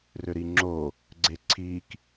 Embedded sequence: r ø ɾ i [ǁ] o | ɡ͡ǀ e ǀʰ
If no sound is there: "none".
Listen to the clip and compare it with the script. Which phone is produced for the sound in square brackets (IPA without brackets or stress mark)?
ŋ͡ǁ